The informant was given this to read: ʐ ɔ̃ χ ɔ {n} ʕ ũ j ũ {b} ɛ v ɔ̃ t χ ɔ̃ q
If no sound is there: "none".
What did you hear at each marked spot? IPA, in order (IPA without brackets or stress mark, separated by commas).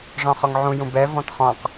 ŋ, b